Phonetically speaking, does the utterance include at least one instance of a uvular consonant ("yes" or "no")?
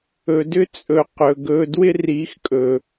yes